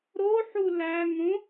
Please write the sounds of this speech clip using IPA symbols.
ɾ o ħ u l æ ŋ õ

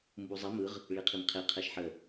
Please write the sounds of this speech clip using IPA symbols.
m b u zˤ i m ɯ ʁ | ɭ i qʰ i m qʰ e qʰ ɛ ʃ ħ ə

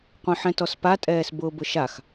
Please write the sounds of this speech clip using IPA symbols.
qʷ œ̃ ħ ɛ̃ t ɔ s p a tʼ ɛː s b ʊː b ʊ ʃ a x

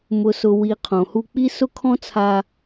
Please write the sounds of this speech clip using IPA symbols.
m ʊ˨ s ʊ˨ w i˨ qʰ õ˨ h u˧ k͡p i˦ s ʊ˦ kʰ ɔ̃˦ t͡sʰ a˧

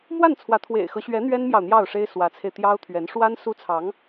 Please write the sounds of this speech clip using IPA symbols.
m w a˥˩ n t͡sʰ w ä˧˥ t̪ʰ w ḛ˨˩ ɪ̯ x ɤ˦ ɕ ɥ ɛ˧˥ n̪ ɥ ɛ˥ n m j ɑ˨ ʊ̯ n̪ j ɑ˥˩ ʊ̯ ʂ e˥ ɪ̯ s w ä˧˥ t͡sʰ e˧ ɪ̯ t̪ j ɑ˥ ʊ̯ t̪ʰ ɥ ɛ˧˥ n ʂ w a˥ n s u˥ t͡sʰ ɑ˧˥ ŋ

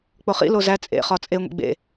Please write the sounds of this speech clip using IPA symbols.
k͡p o χ ḭ l o z æ t͡sʼ ḛ χ ɒ t͡sʼ e ŋʷ ḭ ɡ͡b ḛ

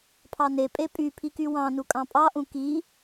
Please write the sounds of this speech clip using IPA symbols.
pʰ ɑ n e pʼ e pʼ y pʰ i k y w ɑ̃ n u kʼ ɑ̃ pʼ ɑ ʔ ũ k i

